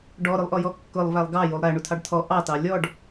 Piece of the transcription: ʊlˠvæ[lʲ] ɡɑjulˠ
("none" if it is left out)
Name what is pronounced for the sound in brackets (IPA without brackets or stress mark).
lˠ